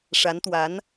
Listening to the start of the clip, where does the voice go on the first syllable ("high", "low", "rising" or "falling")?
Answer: rising